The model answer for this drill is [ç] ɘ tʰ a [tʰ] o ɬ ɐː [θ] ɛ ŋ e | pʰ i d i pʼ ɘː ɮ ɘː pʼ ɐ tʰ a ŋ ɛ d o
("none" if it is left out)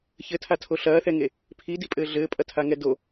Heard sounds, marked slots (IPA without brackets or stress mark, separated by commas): ç, tʰ, θ